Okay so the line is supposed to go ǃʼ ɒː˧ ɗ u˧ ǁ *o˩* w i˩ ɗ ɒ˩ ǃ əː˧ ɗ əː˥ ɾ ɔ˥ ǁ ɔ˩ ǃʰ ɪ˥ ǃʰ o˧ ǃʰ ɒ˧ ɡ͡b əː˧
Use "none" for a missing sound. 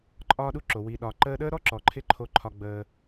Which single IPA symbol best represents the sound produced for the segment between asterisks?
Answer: o˩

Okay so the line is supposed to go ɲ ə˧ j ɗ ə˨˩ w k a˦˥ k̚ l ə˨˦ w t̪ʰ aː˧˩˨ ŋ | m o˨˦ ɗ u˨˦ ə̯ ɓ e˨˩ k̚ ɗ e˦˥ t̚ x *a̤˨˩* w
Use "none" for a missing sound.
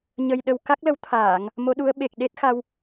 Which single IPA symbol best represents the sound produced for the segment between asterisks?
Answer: a˧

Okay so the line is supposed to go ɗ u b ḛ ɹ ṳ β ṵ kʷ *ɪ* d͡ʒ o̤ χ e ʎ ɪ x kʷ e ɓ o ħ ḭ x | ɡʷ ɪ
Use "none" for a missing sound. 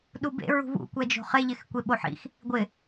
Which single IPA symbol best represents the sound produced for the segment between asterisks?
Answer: ɛ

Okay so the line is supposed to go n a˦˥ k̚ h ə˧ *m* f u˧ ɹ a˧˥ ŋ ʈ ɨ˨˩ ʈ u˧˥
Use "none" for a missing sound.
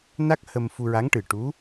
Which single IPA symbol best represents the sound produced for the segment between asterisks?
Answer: m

